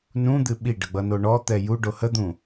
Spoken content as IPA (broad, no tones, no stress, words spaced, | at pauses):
nũd̪ɨ ɓiɖəɡ͡bʌno ɳɔt̪ɛ juɖo həd̪ũ